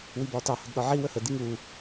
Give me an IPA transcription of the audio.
wibɒːtɑ hədɗɒʕi wəhə diŋu

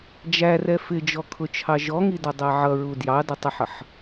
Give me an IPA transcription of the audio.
d͡ʒærɛ fɪd͡ʒɔkʰʊt͡ʃʰɑ ʒɔŋidʌdˤæ ʕʌɹu djɑdətˤəħʌħ

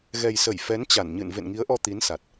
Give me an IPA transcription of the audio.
ɣɛ˨˩jsə˧˩j fɛ˨˦nt͡ɕa˧˩nɲɨ̰˧˨n vḛ˧˨nŋi˨˦ə̯ʔɔ˧ t̪i˨˦nsa˨˩t̚

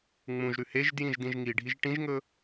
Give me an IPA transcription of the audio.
ŋ͡mũʒɾʉ heʒdjĩʒ dĩʒŋiɖʱiʒ ʈĩʒŋɵ

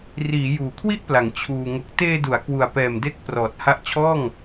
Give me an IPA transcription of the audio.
riː˩˦ juː˨˩kʰwi˥˩ʔpla˩˦ŋ t͡ɕʰuː˧ ŋo˨˩k̚teː˧du˩˦a̯ kwu˨˩a̯pɛː˨˩mde˦˥k̚ prɔː˨˩t̚ ha˦˥ʔt͡ɕʰɔː˥˩ŋ

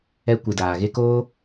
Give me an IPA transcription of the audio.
ɛ˧ kʷɨ˨daː˨ɣe˦koː˦

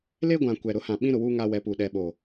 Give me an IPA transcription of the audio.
le˦ɡʷã˨ kʷɛ˨ɾʊ˨˦hã˨ ɓĩ˦ ɾʊ˨wuː˦ ŋa˦wɛ˨˦puː˨ ɗɛ˨ɓo˨

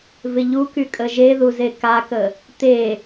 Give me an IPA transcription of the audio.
vɪʎuky kʼəʒeðuze kakə | t̪e

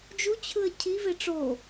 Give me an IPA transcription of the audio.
d͡ʒut͡ɕʰɯə̯ cʰi veʈ͡ʂo

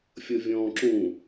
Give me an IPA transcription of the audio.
fʲɤvʲɔ̃ːǁũ

